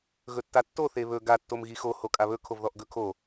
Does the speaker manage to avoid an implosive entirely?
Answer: yes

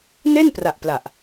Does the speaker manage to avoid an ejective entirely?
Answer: yes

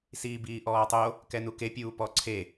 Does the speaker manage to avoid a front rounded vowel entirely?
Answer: yes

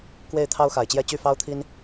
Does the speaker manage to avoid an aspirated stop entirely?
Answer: no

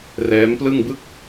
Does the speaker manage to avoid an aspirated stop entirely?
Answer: yes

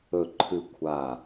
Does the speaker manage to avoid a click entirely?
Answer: no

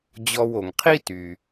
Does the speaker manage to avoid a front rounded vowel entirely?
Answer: no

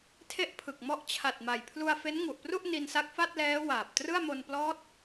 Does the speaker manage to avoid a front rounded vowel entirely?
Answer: yes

